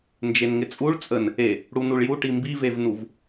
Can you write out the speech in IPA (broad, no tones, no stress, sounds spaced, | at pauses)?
n d͡ʒ e n ŋ ɪ t͡sʼ u ɭ t͡sʼ ə n | e | ɽ u n u ɭ j u ʈ i m b i v e v n u v